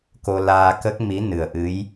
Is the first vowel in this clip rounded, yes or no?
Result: yes